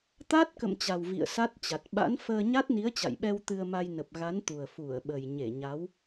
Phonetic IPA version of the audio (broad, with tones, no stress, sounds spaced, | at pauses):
t̪ a˦˥ t̚ k ə̰˧˨ m t͡ɕ a˨˩ w v ḭ˧˨ ə̯ s a˦˥ t̚ t͡ɕ a˨˩ t̚ ɓ a̰˧˥ n f əː˧ ɲ a˦˥ t̚ n i˨˦ ə̯ t͡ɕ a̰˧˨ j ɓ ɛ˧ w t̪ ɨ˧ ə̯ m a˧ j n ə˨˩ p̚ ɣ a˨˦ n t̪ u˨˩ ə̯ f u˧˩ ə̯ ɓ ə˨˩ j ɲ e˧˩ ɲ a˨˦ w